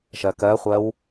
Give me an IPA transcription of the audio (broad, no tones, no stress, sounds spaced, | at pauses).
ʃ ɜ k ɜ χʷ ɜ w